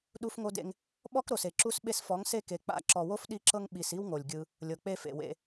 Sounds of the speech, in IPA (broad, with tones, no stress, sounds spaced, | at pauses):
ɗ u˦ f ŋ o˦ d ḛ˦ ŋ | ɓ ɔ˦ k ɾ o˨ s e˨ ǁ u˧ s ɓ e˧ s f ɔ˨˦ ŋ s e˧ k e˨ k͡p a̰˧ ǁ ɔ˨ w o˦ f ɗ i˧ ǁ ɤ˧ ŋ ɓ i˨ s i˦ w ŋ o˨ lʲ ɡʲ ɯ˧ | lʲ ɤ˨ k͡p e˧ f ḛ˨ w ḛ˧